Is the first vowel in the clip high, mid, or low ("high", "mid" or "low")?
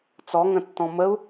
mid